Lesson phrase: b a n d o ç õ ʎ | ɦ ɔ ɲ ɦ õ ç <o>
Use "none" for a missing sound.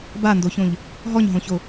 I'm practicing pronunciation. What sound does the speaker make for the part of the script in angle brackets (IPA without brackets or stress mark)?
o